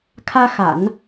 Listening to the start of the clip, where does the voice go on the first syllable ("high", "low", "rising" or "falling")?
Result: high